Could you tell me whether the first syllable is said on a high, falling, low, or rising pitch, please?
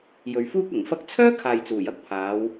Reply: low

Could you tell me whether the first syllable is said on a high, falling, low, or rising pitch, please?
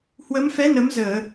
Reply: rising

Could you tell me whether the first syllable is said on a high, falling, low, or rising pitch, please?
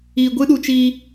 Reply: low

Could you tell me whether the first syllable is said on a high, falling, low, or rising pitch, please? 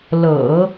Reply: low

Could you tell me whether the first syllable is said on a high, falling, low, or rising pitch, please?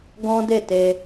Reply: high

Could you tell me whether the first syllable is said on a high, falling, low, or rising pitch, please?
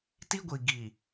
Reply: high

